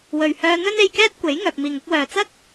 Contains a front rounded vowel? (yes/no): yes